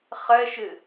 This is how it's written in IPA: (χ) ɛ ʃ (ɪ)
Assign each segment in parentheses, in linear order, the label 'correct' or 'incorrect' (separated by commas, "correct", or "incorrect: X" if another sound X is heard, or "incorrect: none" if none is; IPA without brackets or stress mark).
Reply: correct, correct